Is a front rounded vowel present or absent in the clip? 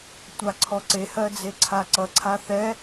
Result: absent